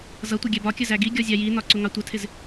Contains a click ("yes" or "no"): yes